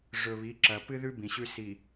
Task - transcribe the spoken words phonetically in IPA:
ʐɵ˨βi˨˦ǁɐ˨ pɨ˦ðʉ˦ bĩ˨ɕʉ˦si˨

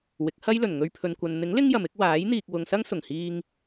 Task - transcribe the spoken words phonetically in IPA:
wɪ˨˥k̚hɐ˥jlɵ˨˩n ŋɵ˧ɥpʰɵ˨nkʷɐ˨n n̪ɪ˨˥ŋ lɪ˥ŋjɐ˨mɪ˨˥k̚ waː˨˥j n̪iː˨k̚wʊ˨ŋsɐ˥ŋ sʊ˨˩ŋhiː˧ŋ

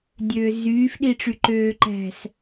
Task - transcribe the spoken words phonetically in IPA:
dʲøːzyːfɗiʈ͡ʂy ǃøːǃæ̤s

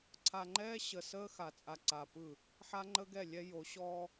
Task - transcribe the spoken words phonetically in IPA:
ǀʰa˨ŋ͡ǃɛː˦ ɕə˨səː˦ xa˨t͡sʼa˨ ǀa˨ pɯ˦˨ | ħa˦ŋ͡ǃə˦ɡɛ˦˨ lʲɛ˦ jo˨˦ɕɔː˦

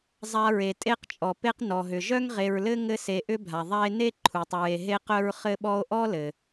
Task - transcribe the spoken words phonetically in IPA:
zˤa˨ɹe˩ tʼe˦qt͡ʃʼɔ˩ pe˦q nɔ˩ɦʏ˩ʒœ˥ŋ ʁe˨ɹlɘ˥ ŋɘ˦ se˨ʔʏ˦bʱa˩ ðˤa˦e̯ne˥ ǃʰu˩tˤɹe˨ ɦe˦qœ˦ɹ χɘ˦ɓɔ˦o̯ʔɔ˥lɘ˩

